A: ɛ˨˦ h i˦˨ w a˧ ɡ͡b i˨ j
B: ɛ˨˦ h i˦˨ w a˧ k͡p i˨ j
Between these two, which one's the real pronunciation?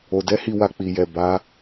B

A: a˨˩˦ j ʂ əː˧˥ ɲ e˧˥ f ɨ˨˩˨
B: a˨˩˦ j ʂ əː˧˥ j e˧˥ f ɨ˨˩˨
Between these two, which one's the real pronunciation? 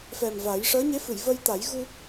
A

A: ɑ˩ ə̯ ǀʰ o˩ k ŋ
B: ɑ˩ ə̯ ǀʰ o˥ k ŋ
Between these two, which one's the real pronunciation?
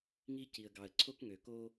B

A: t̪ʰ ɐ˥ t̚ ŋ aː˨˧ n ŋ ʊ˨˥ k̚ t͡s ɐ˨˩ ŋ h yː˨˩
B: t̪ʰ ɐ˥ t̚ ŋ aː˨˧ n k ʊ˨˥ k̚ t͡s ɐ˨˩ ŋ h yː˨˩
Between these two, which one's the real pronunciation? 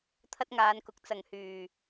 B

